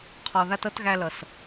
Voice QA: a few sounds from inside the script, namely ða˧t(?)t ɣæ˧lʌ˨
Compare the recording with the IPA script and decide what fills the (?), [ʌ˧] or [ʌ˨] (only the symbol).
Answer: ʌ˧